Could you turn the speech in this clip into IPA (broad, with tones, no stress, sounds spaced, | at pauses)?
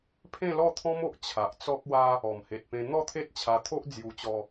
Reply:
pʰ ẽ˥˧ l ɔ˥˧ t̪ʰ ɔ̃˦ m o˨ ʔ t͡ɕʰ a˨ ʔ t͡s ɔ˦ k̚ w a˦ | ɔ˨˩ m h e˨ t̚ p ẽ˧ n̪ ɔ˥˧ t̪ʰ e˦ t̚ t͡ɕʰ a˧ t̪ʰ o˦ ʔ d͡z j u˧ t͡ɕ ɔ˧